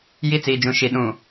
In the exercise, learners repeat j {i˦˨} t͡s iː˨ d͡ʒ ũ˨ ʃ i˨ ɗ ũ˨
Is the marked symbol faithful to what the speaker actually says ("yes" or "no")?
yes